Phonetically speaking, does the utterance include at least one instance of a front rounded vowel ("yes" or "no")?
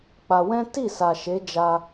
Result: no